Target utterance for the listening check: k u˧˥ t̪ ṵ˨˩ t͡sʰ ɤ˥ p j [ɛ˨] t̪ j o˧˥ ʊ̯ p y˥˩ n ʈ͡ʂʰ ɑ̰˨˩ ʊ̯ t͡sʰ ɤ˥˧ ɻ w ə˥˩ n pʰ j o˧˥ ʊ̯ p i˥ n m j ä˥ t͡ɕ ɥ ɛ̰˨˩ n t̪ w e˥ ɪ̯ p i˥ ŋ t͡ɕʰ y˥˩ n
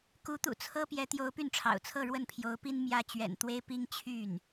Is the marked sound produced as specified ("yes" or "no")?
no